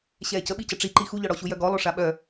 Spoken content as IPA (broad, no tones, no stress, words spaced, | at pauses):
ɕɛːcəɓicə ʈ͡ʂiǃi xuʎɔɽɔɕu jœɡɔlˠo ʂaɓœ